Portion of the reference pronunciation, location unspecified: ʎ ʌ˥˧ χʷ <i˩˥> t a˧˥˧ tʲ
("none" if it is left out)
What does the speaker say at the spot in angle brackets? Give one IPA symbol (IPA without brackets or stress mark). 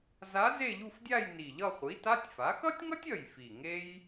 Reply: i˩˥